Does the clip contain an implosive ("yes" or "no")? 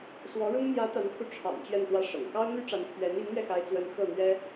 no